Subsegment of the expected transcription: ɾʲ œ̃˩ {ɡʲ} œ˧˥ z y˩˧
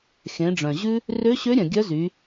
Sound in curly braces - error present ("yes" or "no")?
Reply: no